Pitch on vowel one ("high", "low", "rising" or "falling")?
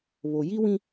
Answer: low